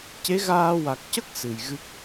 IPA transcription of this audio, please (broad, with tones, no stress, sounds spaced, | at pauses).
c e˧˥ ɣ aː˧ w a˨˩ k̚ c ə˦˥ k̚ s ɨ˨˩ j ɣ ɨ˦˥ k̚